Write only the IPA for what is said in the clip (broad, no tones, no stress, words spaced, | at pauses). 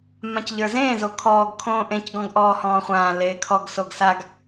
mãcʎə˞zẽː zokʰɔːɡ kʰõːʔẽc ɡɔ̃ɡʔɔːhɔ̃ːχʷãː leːkʰɔɡ soɡsaɡ